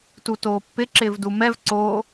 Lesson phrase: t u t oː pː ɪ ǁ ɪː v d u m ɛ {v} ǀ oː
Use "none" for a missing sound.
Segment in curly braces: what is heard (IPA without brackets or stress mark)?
v